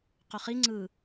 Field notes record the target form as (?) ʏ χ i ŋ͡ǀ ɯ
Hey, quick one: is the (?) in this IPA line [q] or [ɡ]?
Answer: q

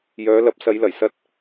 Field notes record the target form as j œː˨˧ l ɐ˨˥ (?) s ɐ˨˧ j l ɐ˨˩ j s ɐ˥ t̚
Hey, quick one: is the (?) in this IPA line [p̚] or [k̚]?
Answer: p̚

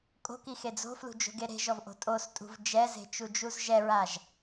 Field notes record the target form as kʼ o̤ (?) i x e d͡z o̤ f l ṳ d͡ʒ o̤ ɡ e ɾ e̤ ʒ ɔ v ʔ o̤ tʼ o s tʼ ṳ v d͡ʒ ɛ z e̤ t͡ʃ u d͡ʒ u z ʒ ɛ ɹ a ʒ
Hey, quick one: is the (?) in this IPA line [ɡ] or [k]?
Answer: k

